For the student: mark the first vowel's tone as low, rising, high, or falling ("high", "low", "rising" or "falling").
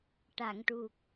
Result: low